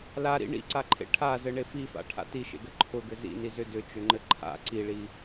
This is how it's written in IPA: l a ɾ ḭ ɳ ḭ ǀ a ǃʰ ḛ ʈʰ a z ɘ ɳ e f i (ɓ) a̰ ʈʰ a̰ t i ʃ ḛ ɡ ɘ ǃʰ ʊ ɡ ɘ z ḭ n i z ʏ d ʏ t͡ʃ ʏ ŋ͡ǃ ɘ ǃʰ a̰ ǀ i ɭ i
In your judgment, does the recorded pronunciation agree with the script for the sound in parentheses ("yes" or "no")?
no